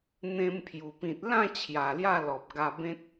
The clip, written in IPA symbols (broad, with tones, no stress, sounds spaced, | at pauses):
n̪ ẽ˧ m pʰ j u˨˩ p ĩ˨ t̚ l ã˥˧ t͡ɕʰ j a˨˩ l j a˥˧ l ɔ˨ p̚ ɡ a˧ b ẽ˦ t̚